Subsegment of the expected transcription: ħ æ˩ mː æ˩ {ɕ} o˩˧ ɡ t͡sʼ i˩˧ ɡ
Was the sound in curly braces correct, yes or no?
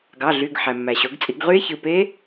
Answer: yes